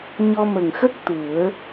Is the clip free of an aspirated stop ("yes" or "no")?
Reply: yes